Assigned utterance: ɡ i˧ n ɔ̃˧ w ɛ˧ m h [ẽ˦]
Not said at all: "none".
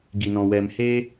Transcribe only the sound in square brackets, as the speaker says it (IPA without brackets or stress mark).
e˦